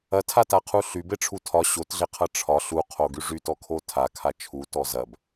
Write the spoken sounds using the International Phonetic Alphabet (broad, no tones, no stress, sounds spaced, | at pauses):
ɐ tʰ a t a qʰ u ɬ y b e ʈ͡ʂʰ u tʰ ɒ ɕ o t ɮ e qʰ ɐ ʈ͡ʂʰ ɒ ɬ u qʰ o ɡ y ʐ y t ɔ kʰ o tʰ a kʰ a t͡ʃʰ u t ɔ z ɐ b